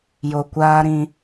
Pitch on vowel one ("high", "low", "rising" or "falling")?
low